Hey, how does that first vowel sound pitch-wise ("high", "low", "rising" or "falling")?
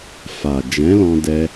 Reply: low